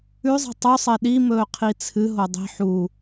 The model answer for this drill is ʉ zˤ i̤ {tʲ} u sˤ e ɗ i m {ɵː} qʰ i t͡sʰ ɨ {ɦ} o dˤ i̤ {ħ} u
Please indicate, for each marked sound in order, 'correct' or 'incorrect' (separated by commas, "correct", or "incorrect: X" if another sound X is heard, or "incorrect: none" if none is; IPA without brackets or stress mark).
incorrect: tˤ, correct, correct, correct